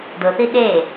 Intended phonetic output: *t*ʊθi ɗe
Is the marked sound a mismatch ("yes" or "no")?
yes